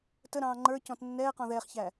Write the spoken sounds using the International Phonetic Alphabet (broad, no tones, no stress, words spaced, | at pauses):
təɾɑ̃ː ŋ͡ǃə˞cɔ̃t nːɛːqɔ̃ ðɛːχçæ